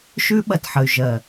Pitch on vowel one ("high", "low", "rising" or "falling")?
high